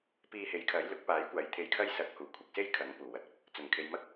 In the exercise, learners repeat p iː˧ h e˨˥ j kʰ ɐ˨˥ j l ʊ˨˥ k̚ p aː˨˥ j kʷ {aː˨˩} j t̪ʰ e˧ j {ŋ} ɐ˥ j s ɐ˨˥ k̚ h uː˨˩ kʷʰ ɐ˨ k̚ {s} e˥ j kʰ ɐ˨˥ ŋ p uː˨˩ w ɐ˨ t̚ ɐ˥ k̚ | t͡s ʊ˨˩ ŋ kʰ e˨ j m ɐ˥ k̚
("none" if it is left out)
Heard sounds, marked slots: aː˨, kʰ, s

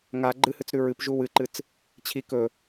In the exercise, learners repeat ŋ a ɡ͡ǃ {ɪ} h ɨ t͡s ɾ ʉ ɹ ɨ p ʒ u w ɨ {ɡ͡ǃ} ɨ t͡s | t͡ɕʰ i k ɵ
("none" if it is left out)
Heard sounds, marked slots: ɨ, ǃ

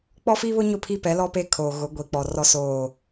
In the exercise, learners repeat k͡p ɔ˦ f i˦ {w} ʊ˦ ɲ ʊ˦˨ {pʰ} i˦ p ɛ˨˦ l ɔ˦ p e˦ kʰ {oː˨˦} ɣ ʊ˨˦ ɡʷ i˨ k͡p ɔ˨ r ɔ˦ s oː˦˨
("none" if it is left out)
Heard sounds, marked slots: β, pʰ, oː˨

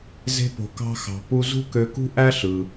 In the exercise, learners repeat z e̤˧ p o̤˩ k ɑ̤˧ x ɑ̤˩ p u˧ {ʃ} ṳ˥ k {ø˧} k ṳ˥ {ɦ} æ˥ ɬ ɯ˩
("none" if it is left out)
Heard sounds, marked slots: z, ø˧, ʔ

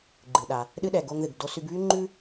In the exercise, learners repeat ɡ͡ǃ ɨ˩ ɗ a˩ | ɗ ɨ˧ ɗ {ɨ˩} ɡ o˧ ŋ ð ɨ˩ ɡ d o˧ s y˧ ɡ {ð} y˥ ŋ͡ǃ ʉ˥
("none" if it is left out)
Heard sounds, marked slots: ɛ˩, β

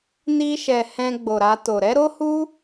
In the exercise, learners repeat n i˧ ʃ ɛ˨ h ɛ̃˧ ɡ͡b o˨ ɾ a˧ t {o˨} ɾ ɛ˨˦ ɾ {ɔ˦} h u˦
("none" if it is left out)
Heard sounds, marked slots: o˨, o˦

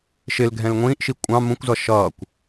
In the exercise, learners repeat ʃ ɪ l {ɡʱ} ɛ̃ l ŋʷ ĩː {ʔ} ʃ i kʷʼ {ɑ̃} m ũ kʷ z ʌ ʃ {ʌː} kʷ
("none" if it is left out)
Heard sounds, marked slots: ɡʱ, ʔ, ɑ̃, ʌː

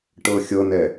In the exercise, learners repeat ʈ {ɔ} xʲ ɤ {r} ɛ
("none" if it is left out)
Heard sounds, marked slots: ɤ, n

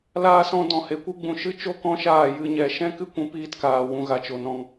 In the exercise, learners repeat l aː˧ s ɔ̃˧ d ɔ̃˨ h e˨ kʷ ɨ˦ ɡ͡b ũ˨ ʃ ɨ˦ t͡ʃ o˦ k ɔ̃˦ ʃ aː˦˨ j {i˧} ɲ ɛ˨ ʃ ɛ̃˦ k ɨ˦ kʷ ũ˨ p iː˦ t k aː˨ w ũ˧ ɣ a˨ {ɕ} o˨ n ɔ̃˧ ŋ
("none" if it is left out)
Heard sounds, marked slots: ɨ˧, t͡ʃ

